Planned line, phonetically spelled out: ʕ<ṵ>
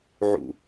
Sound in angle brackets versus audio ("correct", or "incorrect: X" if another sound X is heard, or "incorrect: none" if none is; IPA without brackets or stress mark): correct